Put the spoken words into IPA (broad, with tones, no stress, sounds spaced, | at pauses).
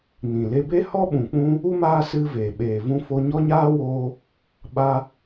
n ĩ˨ l e˧ b e˦ h ɔ˦ ɓ ũ˨ k͡p ũ˧ | u˦ m aː˦ s ɨ˦ v eː˨ ɓ eː˨ v ũ˧ f o˧ ɲ ɔ˦ ɲ aː˦ w oː˧ | ɓ a˧